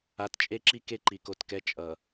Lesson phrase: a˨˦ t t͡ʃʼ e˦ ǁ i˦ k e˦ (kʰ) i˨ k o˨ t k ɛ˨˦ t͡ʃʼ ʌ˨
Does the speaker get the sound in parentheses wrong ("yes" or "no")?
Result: yes